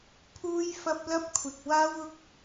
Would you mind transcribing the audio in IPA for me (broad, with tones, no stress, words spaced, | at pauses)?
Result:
pʰuː˥jfɐ˥p̚ lɐ˥p̚kʷʰɪ˨k̚ waː˥w ʊ˥k̚